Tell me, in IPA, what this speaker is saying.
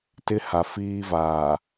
t ɪ˦ h a˨ f iː˦ v aː˨

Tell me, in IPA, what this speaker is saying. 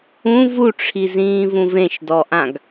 ũ v u ʈ͡ʂʰ i z ĩː v ũ v ẽ ʃ d ɔ ʔ ã ɡ

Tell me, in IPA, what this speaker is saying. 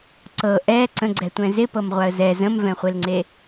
ǀ ɤ ʔ ɛ ǀ ə̃ ɡ͡ǀ ɛ tʷ ɛ̃ z ɪ p ɤ m ʁʷ a ə̯ z ɛ z ə̃ m v ɛ̃ χʷ e l ŋ͡ǀ e

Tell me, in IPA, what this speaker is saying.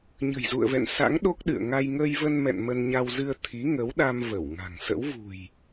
ɲ ə̤˨˩ j z ṵ˧˨ ə̯ v ɛ̰˧˨ n s a̰˧˥ ŋ ɗ o˦˥ k̚ ɗ ɨ̰˧˨ ə̯ ŋ a˧ j ŋ əː˧ j v ə˧ n m ɛ̰˧˨ n m ə˧ n ɲ a˧ w z ɨ˧ ə̯ t̪ʰ i˨˦ ŋ ə˨˦ w ɗ a˧ m v ə˧˩ w ŋ a̤˨˩ ŋ s ə̰˧˥ w v ṳ˨˩ j

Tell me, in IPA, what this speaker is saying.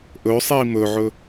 ʔ ɵ sˤ iː m ɵ ʕ ɵ

